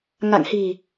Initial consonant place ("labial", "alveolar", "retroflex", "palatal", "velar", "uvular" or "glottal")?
velar